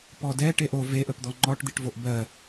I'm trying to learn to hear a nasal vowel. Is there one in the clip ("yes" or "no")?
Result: no